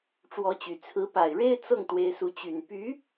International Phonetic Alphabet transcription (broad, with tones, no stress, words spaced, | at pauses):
ʈ͡ʂwɔ˧˥t͡ɕy˨˩ t͡sʰɹ̩˧˥pa˨˩ɪ̯ɻe˥ɪ̯ t͡sɤ˥˩ŋ t̪we˥ɪ̯ su˧˥t͡ɕy˨˩n py˧˥